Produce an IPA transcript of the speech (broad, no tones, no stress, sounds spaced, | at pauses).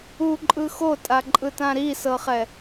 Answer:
u ǃʼ ɯ x o tʼ a ǃʼ ɯ t ã ɾ i s ɤ χ ɛ